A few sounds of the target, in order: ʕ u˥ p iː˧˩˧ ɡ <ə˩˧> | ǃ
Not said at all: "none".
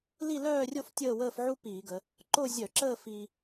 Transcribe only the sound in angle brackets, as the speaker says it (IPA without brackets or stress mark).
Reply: ə˩˧